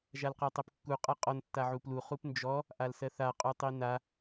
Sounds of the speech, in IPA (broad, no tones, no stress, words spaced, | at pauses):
ʒalqatˤɜpkːu qʼaqʼɔn tːaʕuplu χupnd͡ʒɔ | ʔalsɜθa qʼutˤina